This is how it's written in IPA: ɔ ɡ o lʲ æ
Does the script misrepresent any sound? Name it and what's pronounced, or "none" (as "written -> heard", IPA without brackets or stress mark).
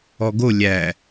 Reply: none